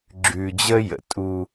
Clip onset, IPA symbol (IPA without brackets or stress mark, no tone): ɡ͡ǁ